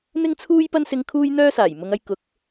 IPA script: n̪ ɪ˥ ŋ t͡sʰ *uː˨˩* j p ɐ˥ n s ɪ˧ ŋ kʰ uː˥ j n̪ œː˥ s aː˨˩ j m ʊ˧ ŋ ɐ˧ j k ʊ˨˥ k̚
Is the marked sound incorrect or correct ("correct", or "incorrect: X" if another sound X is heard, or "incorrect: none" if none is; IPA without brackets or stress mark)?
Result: incorrect: uː˥